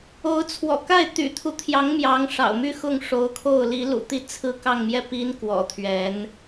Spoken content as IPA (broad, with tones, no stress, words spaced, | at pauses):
o˧˥ʊ̯t͡sʰwɔ̰˨˩ka˥˩ɪ̯ t̪y̰˨˩t̪ʰu˦t̪ʰjɑ˧˥ŋ mjɑ˧˥ŋʂɑ̰˨˩ʊ̯my˥˧xʊ˥˩ŋ ʂo˧˥ʊ̯kʰo˥˩ʊ̯li˧˥ lṵ˨˩t̪i˥˧ t͡sʰɹ̩˥˧ kɑ˥˧ŋmjɛ˥˩ pi˧˥n kwɔ̰˨˩t̪ʰɥɛ˧˥n